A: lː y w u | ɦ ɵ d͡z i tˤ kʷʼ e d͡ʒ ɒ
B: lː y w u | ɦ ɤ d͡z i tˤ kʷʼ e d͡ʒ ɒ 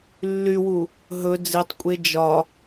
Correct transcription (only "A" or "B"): A